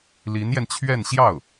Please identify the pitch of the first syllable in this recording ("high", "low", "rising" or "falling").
rising